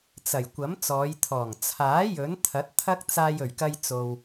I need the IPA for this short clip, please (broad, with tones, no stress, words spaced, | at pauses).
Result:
t͡sɐ˨˩j kʷɐ˨˥m t͡sɔː˨˧jt̪ʰɔː˨˩ŋ t͡sʰaː˨˥ jɵ˨˥n t̪ʰɐ˨˥t̚t̪ʰɐ˥k̚t͡saː˧j ɵ˨˩ɥkɐ˧jt͡so˨w